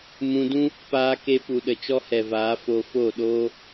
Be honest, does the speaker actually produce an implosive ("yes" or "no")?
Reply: yes